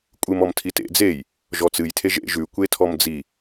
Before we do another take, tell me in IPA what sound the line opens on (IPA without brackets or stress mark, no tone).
kʷʼ